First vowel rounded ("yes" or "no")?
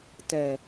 no